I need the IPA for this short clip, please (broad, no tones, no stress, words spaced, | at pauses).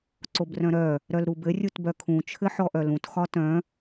ǀobrœ̃ɾœ | ɾœlɾubɘ rʲutbœkʰũ t͡ʃʰɘħɔʔœlũt xɒtœ̃